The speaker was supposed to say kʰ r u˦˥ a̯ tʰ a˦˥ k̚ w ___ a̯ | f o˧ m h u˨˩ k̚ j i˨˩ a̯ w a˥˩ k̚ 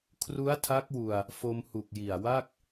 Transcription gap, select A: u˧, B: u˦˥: A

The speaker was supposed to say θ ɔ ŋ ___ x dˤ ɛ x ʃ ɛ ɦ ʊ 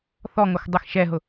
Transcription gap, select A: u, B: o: B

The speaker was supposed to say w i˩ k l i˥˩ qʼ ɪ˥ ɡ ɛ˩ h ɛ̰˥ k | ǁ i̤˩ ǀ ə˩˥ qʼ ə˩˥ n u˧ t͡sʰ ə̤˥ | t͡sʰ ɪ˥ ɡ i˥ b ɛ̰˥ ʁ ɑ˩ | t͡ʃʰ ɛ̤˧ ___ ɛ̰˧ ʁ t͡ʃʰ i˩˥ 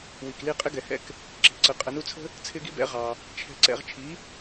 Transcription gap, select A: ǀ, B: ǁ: A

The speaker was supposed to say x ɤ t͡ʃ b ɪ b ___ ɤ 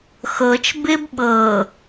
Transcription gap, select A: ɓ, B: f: A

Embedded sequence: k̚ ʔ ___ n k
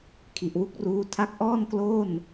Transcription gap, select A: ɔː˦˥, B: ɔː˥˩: B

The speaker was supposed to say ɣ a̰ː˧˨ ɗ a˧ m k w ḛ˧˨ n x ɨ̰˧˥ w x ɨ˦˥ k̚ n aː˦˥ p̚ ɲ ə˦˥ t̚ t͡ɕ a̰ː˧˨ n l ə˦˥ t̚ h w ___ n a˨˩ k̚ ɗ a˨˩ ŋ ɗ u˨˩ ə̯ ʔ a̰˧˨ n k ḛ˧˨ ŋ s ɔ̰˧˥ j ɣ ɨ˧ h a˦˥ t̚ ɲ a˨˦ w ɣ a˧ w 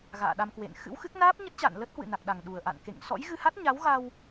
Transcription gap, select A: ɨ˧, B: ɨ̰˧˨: B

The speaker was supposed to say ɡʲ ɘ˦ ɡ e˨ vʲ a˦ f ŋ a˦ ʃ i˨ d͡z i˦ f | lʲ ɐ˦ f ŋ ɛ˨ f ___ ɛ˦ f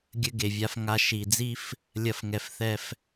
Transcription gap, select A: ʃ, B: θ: B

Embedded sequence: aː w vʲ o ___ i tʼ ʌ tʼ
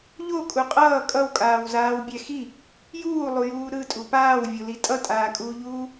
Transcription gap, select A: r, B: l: B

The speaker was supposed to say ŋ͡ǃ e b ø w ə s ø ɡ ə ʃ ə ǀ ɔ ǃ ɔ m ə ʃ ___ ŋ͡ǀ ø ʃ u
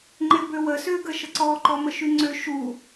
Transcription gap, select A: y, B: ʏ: A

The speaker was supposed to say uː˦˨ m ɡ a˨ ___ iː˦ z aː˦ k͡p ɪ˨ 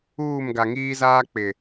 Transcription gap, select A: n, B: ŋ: B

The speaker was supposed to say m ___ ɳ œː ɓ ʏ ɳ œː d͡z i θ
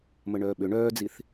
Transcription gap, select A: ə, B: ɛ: A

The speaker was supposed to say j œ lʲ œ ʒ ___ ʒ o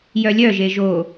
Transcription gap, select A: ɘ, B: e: B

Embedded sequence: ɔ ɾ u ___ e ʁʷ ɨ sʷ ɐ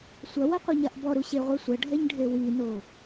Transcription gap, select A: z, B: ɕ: B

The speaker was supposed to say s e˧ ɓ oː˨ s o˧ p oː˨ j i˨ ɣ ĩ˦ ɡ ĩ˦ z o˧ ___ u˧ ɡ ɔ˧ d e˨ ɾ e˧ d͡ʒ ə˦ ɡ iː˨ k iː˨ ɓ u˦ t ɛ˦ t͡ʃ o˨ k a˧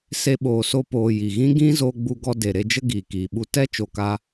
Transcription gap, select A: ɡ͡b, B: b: A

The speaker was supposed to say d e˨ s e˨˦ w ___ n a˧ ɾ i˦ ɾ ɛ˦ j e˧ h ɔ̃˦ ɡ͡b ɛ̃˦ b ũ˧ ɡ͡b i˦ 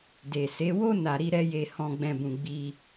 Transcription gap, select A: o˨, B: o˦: B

